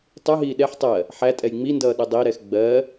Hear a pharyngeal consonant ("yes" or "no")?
yes